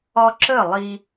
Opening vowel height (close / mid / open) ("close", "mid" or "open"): open